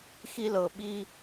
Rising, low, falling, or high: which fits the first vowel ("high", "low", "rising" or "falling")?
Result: high